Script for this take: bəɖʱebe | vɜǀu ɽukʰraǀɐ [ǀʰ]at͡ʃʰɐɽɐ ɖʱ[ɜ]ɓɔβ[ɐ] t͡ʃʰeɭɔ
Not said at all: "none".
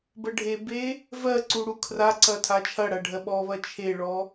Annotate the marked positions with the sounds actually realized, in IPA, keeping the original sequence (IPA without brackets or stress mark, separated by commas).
tʰ, ɜ, ɐ